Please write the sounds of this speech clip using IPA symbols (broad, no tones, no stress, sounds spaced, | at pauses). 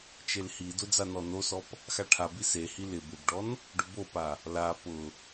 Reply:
t͡ʃ e l h i d ʊ d͡z a n ɔ n o s ɔ p | x a ʈʰ a b i s e h i l ɪ b ɪ b ɖ ɔ n | ɖ ʊ b o p a | l a p ʊ